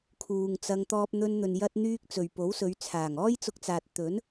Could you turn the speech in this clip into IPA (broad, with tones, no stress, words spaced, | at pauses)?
kʰuː˨ŋt͡sɐ˧ŋ t̪ɔː˧p̚n̪ɵ˧nn̪ɵ˨n jɐ˧t̚n̪yː˧k̚ t͡sɵ˨ɥpo˨˥wsɵ˨˧ɥ t͡sʰaː˨˩ŋɔː˥jt͡sʊ˧k̚t͡saː˨t̚ t̪ɵ˨˥n